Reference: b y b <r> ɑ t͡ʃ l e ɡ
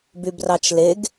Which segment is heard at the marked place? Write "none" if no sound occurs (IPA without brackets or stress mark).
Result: r